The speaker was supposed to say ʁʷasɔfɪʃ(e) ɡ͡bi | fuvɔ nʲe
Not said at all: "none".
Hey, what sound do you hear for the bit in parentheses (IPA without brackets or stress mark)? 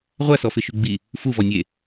y